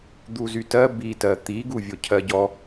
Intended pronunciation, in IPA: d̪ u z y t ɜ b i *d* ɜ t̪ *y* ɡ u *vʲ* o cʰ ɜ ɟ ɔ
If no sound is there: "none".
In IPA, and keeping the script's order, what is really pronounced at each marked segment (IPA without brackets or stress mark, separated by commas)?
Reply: t, i, vʲ